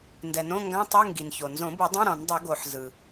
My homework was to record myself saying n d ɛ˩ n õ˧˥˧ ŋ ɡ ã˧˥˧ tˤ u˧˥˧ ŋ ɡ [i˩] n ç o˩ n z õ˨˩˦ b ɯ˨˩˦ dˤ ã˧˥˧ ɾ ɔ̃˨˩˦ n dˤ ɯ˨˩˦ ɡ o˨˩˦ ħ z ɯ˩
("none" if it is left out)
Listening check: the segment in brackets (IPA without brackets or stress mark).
i˩